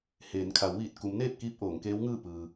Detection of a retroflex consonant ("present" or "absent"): absent